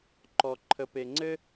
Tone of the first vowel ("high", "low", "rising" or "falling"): high